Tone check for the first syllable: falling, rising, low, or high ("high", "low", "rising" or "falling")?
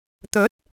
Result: rising